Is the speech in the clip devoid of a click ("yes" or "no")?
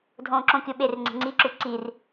no